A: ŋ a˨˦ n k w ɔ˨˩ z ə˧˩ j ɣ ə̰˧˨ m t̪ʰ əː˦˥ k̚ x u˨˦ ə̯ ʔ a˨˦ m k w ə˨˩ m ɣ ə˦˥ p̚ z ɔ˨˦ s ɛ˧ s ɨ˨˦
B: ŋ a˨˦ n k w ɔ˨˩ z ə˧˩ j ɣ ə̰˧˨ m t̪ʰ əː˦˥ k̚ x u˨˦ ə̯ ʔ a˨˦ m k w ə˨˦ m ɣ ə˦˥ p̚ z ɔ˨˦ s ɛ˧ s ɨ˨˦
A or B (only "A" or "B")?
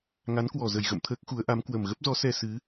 A